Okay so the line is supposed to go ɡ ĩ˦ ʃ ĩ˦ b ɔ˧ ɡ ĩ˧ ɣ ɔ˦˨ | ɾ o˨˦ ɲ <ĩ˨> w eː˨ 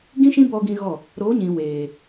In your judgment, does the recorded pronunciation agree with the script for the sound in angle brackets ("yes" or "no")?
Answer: yes